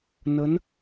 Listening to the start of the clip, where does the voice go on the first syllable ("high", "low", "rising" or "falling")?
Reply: rising